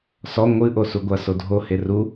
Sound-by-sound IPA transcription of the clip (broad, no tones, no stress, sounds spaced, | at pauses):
s ɔ ŋʷ ɨ ʔ o s u ɡʷ ɐ s o dʱ o h e r u